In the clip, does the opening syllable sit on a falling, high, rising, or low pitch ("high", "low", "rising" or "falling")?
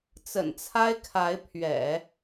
low